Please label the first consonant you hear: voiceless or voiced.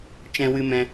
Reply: voiceless